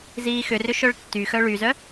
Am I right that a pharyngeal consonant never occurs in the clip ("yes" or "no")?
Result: yes